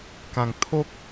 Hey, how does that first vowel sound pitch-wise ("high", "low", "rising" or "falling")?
low